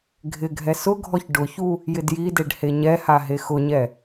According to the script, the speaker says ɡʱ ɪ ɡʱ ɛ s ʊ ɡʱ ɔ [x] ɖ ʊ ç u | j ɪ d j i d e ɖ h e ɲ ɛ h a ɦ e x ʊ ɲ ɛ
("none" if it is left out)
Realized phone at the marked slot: ç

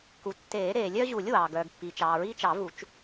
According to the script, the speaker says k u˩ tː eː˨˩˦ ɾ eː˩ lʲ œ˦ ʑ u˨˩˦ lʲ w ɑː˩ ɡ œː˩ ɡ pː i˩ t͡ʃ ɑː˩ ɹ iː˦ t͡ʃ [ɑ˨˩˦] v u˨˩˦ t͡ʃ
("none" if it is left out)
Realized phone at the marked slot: ɑ˨˩˦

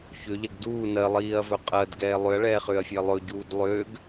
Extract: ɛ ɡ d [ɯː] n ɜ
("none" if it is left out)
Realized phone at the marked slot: uː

